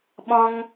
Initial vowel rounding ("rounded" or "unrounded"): rounded